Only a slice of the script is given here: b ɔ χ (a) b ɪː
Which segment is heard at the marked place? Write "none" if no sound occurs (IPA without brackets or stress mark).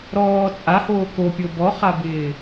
a